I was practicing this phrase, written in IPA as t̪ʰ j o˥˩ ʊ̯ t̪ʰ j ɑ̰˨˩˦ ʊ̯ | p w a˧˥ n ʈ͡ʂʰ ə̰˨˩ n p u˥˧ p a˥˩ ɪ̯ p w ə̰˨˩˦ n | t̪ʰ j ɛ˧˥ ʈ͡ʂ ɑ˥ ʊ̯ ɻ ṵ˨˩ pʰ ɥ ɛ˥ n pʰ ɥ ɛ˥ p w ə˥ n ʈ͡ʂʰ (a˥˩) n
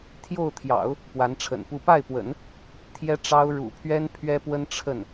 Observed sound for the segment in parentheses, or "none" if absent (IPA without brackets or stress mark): ə˥˩